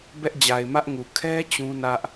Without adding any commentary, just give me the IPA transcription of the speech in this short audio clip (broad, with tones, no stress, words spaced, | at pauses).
bɛ˦ʔd͡ʑa˨ɪ̯mä˦ʔŋu˨ kʰɛ˦ t͡ɕũ˦nä˦ʔ